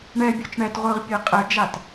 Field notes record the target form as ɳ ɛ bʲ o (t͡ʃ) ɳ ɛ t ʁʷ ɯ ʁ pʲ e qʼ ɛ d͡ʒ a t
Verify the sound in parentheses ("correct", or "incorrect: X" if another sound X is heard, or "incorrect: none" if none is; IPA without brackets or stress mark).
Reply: correct